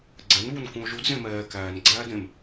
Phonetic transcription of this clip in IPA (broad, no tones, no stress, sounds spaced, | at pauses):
ɡ͡ǀ ɛ n β u n k ũ o̯ ʒ u d z ẽ m ɛː k æː n ɡ͡ǀ æː d ẽ m